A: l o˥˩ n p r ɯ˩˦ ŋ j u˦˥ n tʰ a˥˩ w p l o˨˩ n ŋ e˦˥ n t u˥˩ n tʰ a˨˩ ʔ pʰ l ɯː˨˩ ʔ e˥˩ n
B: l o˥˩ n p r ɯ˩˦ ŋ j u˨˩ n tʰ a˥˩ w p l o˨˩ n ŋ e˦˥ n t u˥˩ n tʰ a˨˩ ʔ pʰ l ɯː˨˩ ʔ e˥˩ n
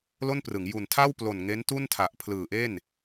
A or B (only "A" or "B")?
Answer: B